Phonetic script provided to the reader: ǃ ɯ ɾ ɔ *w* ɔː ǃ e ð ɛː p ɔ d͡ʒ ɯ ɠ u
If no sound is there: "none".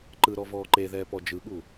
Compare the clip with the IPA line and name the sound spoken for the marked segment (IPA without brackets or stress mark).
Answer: v